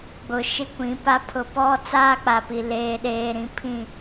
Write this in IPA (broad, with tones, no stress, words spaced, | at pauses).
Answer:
ɡ͡bʊ˨ ʃɪ˦kʷĩ˨˦pa˦ pʰʊ˨pɔ˦ t͡saː˦k͡pa˨pi˨ leː˨ɗeː˨ɾĩ˨ pʰĩ˦˨